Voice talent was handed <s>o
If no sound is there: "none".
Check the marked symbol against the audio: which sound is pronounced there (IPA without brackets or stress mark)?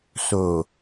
s